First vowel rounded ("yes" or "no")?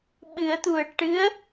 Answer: no